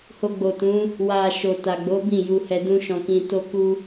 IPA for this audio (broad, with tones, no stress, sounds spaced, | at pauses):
h o˧ ɡ͡b o˨ t ũ˨˦ | w a˨ ʃ o˨ t a˨ ɡ͡b o˨˦ b ĩ˦˨ j u˧ h ɛ˧ d ũ˦ ʃ ɔ̃˧ k ĩ˧ t o˦ k u˦